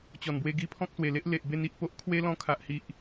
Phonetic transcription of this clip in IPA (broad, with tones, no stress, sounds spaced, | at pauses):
t͡ɕ ɔ˨˩ n b w e˧ ɡ i˧ pʰ ɔ̃˦ k̚ s w e˨˩ l e˦ ʔ l e˨ ʔ b e˧ n i˨ ʔ p o˦ ʔ kʰ w e˦ l ɔ̃˧ kʰ a˨ ʔ h i˨ ʔ